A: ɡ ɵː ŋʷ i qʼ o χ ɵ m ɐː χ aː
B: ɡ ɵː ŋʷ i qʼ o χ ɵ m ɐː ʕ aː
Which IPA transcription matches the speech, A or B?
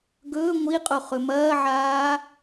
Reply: B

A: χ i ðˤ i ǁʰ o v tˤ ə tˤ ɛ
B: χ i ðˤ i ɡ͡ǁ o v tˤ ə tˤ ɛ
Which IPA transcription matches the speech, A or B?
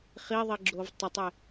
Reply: B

